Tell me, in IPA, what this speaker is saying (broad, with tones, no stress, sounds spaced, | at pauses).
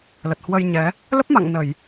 l ə˨˩ t̚ h w ə˧ j ɲ ɛ˨˦ | l ə˦˥ p̚ m a̰˧˨ ŋ n ə˧˩˨ j